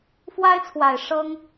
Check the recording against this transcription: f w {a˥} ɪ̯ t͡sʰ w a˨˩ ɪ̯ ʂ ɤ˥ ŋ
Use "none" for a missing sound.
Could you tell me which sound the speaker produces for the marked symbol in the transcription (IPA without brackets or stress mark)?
a˥